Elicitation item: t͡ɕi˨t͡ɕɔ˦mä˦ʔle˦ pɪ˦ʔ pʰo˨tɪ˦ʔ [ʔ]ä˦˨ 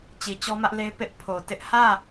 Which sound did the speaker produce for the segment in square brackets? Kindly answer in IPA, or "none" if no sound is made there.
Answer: h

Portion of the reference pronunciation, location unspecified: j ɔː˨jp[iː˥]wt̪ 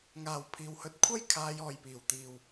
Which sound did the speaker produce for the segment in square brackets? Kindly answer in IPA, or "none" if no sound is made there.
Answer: iː˨˩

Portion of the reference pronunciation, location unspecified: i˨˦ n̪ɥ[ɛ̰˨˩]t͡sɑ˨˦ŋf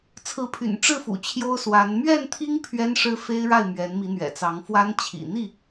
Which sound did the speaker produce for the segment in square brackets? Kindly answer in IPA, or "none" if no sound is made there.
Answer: ɛ̰˨˩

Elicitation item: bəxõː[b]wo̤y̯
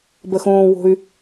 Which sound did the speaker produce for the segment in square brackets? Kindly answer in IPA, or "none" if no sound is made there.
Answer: none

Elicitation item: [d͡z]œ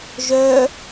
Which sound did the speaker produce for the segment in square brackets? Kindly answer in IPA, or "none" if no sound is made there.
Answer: ʒ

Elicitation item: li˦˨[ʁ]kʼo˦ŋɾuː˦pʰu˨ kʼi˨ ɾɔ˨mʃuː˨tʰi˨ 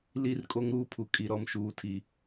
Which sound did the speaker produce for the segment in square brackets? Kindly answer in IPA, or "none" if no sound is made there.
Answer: r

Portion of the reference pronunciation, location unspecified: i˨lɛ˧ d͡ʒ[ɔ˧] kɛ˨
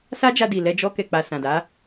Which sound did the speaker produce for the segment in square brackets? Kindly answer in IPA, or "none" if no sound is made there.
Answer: ɔ˧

